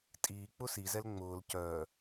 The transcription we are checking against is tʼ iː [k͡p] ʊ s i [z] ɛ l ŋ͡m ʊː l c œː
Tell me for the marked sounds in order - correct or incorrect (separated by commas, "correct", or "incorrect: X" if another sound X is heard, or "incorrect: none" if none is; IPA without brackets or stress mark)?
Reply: correct, correct